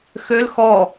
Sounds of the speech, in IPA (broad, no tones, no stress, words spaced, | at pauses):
xøl xɔ